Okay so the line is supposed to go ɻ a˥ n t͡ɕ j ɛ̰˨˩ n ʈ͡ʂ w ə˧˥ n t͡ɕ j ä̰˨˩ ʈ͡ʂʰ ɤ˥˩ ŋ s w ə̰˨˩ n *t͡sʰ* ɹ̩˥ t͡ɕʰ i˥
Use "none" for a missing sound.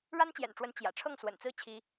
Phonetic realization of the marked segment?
t͡s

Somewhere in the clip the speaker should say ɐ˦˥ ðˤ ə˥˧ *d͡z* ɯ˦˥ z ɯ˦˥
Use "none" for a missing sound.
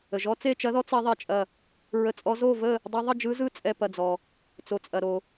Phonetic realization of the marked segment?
d͡ʒ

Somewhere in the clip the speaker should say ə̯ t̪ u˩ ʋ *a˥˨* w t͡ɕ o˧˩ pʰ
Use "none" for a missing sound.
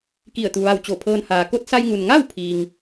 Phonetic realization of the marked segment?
a˧˩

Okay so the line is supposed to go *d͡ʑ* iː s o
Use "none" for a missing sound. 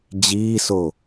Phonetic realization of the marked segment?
d͡ʑ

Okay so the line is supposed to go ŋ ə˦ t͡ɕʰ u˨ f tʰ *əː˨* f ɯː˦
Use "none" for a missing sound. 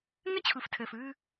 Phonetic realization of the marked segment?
əː˨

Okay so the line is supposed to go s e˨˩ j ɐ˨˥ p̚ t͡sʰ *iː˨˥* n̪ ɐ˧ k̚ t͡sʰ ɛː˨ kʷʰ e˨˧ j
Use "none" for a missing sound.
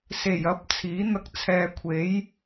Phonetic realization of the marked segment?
iː˨˥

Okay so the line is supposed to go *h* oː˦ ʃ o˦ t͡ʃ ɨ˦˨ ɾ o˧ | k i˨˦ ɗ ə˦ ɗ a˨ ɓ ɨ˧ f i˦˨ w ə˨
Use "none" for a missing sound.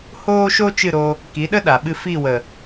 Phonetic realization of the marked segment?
h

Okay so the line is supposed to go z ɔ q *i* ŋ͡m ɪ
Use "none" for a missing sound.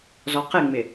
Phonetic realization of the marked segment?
ɪ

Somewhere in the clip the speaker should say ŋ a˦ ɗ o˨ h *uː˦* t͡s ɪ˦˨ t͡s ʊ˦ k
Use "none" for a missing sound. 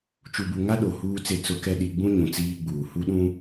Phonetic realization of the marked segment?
uː˦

